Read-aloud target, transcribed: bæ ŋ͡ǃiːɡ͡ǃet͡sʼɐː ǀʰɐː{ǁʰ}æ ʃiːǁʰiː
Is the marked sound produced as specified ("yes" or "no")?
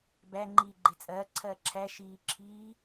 yes